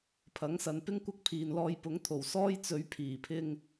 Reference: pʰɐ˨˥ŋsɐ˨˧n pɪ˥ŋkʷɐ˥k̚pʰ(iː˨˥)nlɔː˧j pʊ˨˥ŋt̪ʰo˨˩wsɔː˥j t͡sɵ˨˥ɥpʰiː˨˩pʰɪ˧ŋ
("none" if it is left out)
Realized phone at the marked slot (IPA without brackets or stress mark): iː˨